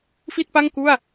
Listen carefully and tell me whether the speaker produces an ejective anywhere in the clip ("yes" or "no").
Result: no